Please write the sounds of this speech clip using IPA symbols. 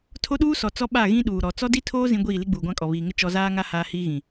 tʰo˦ɗuː˦sɔ˨ t͡sɔ˦ɓa˦˨ɣĩ˦ ɗuː˨ɾɔ˨˦ t͡sɔ˦di˦tʰoː˦ zĩ˦ɡʷiː˦˨ li˦ɡ͡buː˨ɡʷã˦kʼɔ˨ βiː˨ŋɪ˦ t͡ʃɔ˦ zaː˦ŋa˦ haː˦hiː˦ɣĩ˨

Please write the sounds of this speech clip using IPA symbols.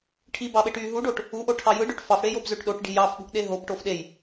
ʈʰibɑɓeʈyː ɦuɖoʈ | uʔoʈʰɑ jɯɖøʈ fɑfɽejobzøʈ ɗoʈɖi̤ jɑfɓṳʔɗe ɦobʈof ɗej

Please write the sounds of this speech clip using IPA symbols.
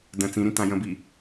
də̃ t͡sĩɾĩ tãjə̃bi

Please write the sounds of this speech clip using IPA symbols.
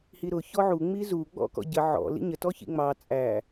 hiɾʊ çɔʕu ŋ͡mizu ɡ͡bɔ̰kɔ̰ɟə ʕɔ̰ lḭɲə tɔçḭŋ͡mɑ t͡sʼæ

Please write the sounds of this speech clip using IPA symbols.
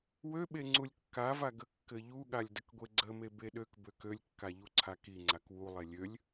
wøɓe ŋ͡ǀulʲkːava ɡəkːɘʎuɠalʲ dəkɡʷeɡ͡ǀəme beɗøkbøk ølʲkːa ʎuǀʰakiŋ͡ǀak wulˠe lʲølʲ

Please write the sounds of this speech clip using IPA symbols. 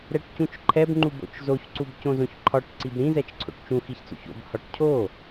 ɾɛʈcũt͡ʃǃʰɛbŋ͡ǃu bo̰t͡ʃzoç ǀubcõzõçǃʰɒʈ ǀibɾĩzɛt͡ʃǀʰo̰ʈ t͡ʃũxiçt͡so̰ç o̰bhɒʈ cʰo

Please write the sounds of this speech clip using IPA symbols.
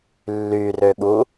lːyrøɠu

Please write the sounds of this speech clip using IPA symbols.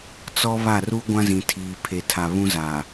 t͡sɔ˦βa˦˨ ru˦ ɡʷã˦zĩ˨ tʰiː˨pʰe˨tʰa˨ βũ˦za˨

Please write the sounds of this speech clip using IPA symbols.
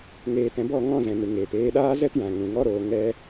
ŋeː˨tɛ̃˨bɔ˦˨ ŋɔ̃˦˨zɛ̃˨nɨ˨ŋeː˨p eː˧ɗaː˦ zɛ˦tjã˨ŋũ˨ ŋɔ˦ɾoː˧ ŋɛ˦

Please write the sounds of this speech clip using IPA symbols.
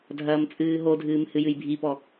dʱɐːmt͡sʼɨːɦodʱɨːm hɨjɨjbʱipɔ

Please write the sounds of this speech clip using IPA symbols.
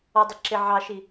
ɔdˤɪ ǁɪ ʕɑʃi

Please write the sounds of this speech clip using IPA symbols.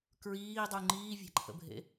kɹiːdˤu ŋ͡ǃiːvʲæ̤ǃʰə̰bʱḛ

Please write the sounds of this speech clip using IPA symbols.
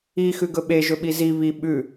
ixʉɡɵ ɓeʒɵɓi zi βi ɓʉ

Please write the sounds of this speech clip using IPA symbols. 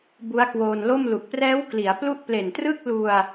bu˦˥a̯kwoː˧nlo˥˩m lu˨˩k̚prɛː˦˥wkli˩˦a̯ plu˦˥ʔ ple˨˩ntrɯ˥˩k̚ lu˧a̯

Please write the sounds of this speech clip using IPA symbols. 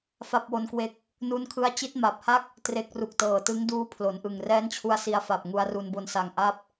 fa˥˩p̚wo˦˥nkwe˦˥k̚ | nu˦˥nkʰɯ˦˥a̯ t͡ɕi˦˥t̚ma˨˩p̚ha˥˩k̚ | tre˦˥k̚ ru˨˩k̚tɤː˨˩tɯ˦˥ŋduː˦˥ pʰlo˩˦nʔɯ˨˩ŋ rɛː˦˥nt͡ɕʰu˧a̯ si˧a̯fa˨˩p̚ ŋu˧a̯ru˧nbo˧n sa˧ŋ ʔa˦˥p̚

